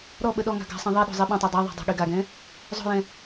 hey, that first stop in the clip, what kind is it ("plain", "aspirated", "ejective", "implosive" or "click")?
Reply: implosive